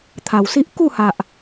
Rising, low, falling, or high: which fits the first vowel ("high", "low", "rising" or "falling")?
low